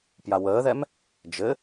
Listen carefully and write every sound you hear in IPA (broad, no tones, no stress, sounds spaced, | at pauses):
p j a w əː ð ɛ m | d͡ʒ ɘ